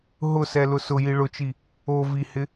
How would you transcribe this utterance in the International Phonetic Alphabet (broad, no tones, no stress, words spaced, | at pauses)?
ɦʊsɛlʊ sʊji ɭʊt͡ʃi | o vihɪ